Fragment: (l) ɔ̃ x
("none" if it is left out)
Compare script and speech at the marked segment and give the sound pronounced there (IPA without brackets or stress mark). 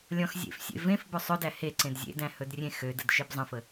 lʲ